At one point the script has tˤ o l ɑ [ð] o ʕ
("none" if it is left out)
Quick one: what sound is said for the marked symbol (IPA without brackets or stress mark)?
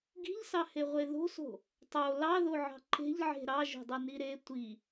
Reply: ð